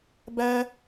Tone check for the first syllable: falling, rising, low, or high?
high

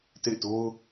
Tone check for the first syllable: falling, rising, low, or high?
falling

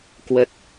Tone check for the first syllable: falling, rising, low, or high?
low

